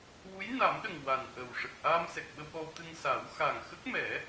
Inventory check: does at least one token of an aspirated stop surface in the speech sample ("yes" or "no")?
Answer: no